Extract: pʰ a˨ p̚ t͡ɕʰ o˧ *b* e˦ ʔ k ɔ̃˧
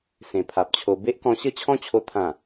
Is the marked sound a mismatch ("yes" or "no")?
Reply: no